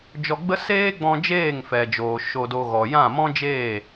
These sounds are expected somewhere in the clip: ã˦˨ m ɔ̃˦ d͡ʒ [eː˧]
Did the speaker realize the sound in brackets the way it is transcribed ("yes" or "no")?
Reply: no